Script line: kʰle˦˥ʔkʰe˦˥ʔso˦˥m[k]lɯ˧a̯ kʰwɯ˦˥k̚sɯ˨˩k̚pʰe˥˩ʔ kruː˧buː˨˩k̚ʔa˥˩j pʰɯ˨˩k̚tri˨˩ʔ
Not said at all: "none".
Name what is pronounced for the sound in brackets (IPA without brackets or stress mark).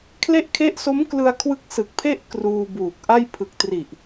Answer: k